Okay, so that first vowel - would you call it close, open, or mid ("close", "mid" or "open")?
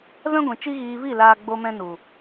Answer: mid